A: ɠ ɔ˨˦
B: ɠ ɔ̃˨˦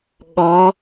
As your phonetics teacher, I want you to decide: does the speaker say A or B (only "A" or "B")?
A